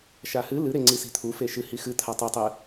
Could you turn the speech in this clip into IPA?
ʃ a h ɨ l ɨ ɾ e ŋ͡ǀ i s i̤ t̪ʰ u f e ʃ ɨ h i x ɨ t̪ʰ a tˤ ɨ tˤ ɨ

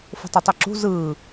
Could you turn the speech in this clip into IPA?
f o̤ tˤ ɑ tˤ u ǁ ṳ z ɯː

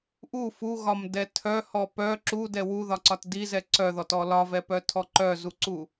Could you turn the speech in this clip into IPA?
ʔ u f u ɣ ɒ m d ɛ tʰ œ h ɔ p œ ǁ u d ɛ w u ð ɒ ǀ ɒ t d i z ɛ ǀ œ ð ɔ t ɔ l ɒ v ɛ p œ tʰ ɔ ǃ œ z u ǀ u

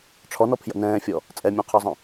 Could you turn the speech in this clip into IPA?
ʈ͡ʂʰ ɔ n ɔ pʰ j ə̰ n ɛ̃ː fʲ ɔ | t͡sʼ ɛ mʲ œ̃ qʰ ɔ zˤ ə̃

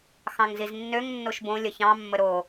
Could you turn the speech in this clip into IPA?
x ɑ̃ ŋ z i z nː ø ŋ nː o ʃ b õ lʲ ə ç ɑ̃ mː ə ɾ o

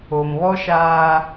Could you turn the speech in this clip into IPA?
o˨ m β ɔ˦ ʃ aː˦

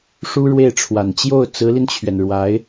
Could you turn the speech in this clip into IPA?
ʂ u˥ ɻ w e˥˩ ɪ̯ ʈ͡ʂʰ w a˨˩ n t͡ɕ j o˥˩ ʊ̯ t͡s ɹ̩˧˥ l i˧ n t͡ɕʰ ɥ ɛ˩ n ɻ w a˧˥ ɪ̯

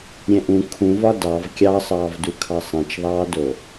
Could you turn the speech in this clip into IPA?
ɾʲ ɛ̃ ʔ ũ kʰ ũ v ɒ d ɑ v kʲ ɑ sˤ ɑː v d u kʰ ɑ sˤ ɛ̃ t͡ʃ ðˤ ɑː d o

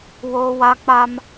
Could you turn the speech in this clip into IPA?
w oː˦ w a˦ k͡p a˦ m

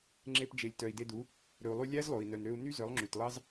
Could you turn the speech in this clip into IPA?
ŋ͡ǁ e˧ p d͡ʒ e˨ lʲ t œ˨ i̯ d e˧ d u˨˦ | ɾ ɵ˨ u̯ lˠ y˧ lʲ æ˦ z lˠ o˨ i̯ n œ˨ n ɾ ø˧ u̯ n y˦ z œ˨˦ lˠ ŋ͡ǁ y˨ t lˠ ɑ˦ z

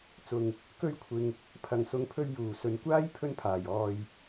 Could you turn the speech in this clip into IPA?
t͡s ʊ˨ ŋ | k ɵ˧ ɥ kʷʰ ɪ˨ ŋ | pʰ ɐ˨˩ ŋ s ʊ˨˧ ŋ pʰ ɵ˧ ɥ j uː˨˩ s ɵ˨˧ n kʷ aː˥ j pʰ ɵ˧ n pʰ aː˨˩ j ɔː˨ j

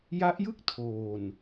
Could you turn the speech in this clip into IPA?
j a˦˥ ʔ j ɯ˥˩ k̚ tʰ oː˨˩ n

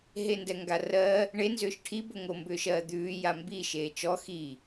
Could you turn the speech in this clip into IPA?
ɦ e n d ɛ ŋ ɡ a r ɜː | ɳ e n z ʏː ʃ ʈʰ i b o ŋ o m b ʏː ʃ ɜː d̪ ʉː j a m b i ʃ eː t͡ʃ ɔ x iː

